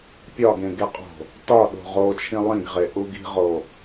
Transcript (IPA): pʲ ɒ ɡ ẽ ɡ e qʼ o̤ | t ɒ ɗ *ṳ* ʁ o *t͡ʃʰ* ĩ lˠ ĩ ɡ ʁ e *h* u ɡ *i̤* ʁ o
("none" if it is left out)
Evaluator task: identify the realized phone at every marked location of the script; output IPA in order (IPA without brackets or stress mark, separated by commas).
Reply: o̤, t͡ʃʰ, ʔ, i̤